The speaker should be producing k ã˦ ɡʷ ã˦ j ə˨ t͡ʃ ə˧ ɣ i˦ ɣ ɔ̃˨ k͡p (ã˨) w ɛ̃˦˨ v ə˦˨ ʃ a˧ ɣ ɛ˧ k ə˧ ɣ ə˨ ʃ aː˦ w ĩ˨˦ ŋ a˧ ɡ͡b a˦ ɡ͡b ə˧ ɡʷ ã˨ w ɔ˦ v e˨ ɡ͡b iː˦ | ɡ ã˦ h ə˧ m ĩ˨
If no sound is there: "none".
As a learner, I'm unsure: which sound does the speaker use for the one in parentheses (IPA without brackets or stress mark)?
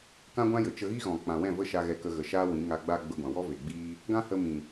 ã˨